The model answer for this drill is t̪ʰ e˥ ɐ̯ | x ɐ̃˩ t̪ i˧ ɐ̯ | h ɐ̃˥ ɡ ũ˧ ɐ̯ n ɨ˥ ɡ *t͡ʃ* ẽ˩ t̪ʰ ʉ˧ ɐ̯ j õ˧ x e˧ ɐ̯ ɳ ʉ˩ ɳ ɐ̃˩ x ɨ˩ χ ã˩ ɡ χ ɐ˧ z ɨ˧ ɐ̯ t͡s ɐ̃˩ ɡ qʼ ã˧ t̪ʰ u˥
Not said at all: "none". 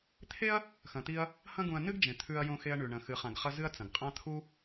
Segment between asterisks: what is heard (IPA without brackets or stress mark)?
d͡ʒ